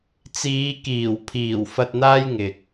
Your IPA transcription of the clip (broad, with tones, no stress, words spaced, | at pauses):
t͡siː˨˧kiː˨˩w pʰiː˨˩w fɐ˧t̚n̪aː˥jŋɪ˨k̚